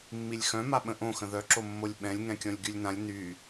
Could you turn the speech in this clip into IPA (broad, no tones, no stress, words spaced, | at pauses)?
mːilʲxœ̃ma ɓə̃ʔõxə̃ ðœǁo mːolʲɓɛ̃lʲ ŋɛ̃kʲɔ̃lʲɡylʲnãlʲ ny